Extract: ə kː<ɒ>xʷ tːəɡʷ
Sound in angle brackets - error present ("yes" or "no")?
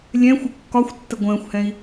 no